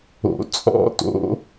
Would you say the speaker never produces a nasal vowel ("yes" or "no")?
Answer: yes